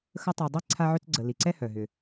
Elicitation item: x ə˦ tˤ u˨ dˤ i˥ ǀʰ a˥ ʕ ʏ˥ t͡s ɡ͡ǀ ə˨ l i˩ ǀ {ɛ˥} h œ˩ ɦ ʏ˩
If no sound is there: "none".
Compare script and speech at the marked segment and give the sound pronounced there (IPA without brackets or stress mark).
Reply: ɛ˥